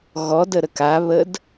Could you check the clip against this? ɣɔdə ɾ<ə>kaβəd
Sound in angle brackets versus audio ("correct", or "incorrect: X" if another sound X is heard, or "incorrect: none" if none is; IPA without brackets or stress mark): correct